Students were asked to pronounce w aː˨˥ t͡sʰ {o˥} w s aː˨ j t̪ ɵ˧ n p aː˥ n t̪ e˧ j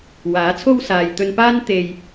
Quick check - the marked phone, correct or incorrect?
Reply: correct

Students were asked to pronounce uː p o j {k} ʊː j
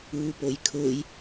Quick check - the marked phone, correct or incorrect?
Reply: incorrect: kʰ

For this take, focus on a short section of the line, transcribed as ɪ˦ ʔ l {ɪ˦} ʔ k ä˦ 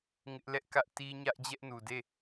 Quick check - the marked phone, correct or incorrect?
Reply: incorrect: ɛ˦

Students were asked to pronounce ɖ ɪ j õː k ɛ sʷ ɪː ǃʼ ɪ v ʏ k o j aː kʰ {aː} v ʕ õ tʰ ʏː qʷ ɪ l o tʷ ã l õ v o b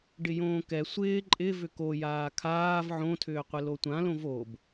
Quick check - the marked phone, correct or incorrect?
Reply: correct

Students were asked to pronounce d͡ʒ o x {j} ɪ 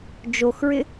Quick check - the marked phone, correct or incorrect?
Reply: incorrect: ɹ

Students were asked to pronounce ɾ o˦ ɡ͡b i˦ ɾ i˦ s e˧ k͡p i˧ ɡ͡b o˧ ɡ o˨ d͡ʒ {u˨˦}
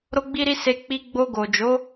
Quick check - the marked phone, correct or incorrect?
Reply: incorrect: o˨˦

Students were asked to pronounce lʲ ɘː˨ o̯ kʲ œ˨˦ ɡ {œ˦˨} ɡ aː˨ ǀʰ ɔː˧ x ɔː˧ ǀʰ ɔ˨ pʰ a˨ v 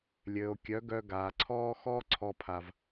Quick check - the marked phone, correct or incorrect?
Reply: incorrect: œ˧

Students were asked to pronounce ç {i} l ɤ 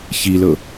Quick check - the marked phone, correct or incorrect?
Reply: correct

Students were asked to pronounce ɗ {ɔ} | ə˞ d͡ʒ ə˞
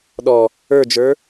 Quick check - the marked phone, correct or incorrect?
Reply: correct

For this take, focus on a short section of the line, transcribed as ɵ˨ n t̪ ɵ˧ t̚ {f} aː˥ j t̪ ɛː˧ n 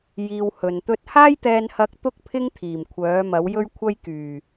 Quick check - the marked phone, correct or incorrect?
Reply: incorrect: h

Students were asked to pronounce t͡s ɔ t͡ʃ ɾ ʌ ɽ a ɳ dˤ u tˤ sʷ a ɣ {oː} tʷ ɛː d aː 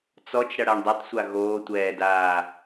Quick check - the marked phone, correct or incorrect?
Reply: correct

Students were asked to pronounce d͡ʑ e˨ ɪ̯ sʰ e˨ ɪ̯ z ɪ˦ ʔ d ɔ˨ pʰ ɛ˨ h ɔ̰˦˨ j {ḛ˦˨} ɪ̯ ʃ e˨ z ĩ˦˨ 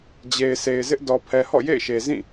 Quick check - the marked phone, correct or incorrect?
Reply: correct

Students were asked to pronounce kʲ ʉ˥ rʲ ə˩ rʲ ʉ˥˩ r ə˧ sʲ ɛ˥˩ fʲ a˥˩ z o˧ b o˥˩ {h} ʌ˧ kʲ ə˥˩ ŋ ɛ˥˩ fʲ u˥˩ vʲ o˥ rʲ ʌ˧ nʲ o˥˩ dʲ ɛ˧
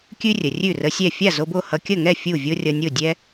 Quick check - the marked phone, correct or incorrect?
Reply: correct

